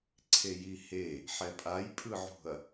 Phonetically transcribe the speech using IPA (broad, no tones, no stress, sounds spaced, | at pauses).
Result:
ǀʰ e j i h e | ħ ɛ pʼ a j pʼ ɯ ʕ ṳ ɐ̯